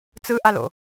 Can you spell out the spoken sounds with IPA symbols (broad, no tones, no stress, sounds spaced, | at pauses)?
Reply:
t͡s ɯ ʔ a l o̰